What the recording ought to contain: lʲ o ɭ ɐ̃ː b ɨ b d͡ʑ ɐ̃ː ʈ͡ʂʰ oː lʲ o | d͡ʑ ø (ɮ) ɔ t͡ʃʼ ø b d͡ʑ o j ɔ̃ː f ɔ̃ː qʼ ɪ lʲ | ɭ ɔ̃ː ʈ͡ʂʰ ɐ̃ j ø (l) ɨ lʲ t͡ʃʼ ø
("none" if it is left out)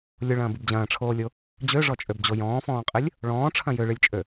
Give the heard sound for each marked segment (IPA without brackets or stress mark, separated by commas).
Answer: ʐ, ɭ